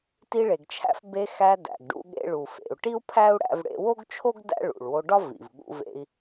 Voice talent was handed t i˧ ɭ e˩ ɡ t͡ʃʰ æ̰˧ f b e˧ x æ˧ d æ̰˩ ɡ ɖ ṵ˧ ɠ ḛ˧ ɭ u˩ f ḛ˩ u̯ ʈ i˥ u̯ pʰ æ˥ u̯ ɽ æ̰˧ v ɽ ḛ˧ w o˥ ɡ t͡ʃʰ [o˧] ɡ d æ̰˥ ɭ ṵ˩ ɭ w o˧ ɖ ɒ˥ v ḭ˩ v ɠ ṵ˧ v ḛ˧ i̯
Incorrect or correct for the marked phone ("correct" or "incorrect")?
incorrect